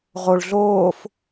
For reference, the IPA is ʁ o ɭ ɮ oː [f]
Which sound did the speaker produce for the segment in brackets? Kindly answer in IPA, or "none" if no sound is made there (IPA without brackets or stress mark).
f